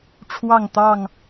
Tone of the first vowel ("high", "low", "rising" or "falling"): falling